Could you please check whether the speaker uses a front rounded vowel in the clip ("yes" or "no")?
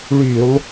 yes